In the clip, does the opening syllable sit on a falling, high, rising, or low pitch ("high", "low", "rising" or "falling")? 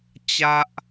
high